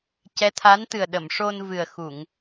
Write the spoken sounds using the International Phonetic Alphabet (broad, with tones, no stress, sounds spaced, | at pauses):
c ɛ˧˥ t̪ʰ a˧˥ n t̪ ɨ˨˩ ə̯ ɗ ə˨˩˨ m ʂ o˧ n v ɨ˨˩ ə̯ x u˨˩˨ ŋ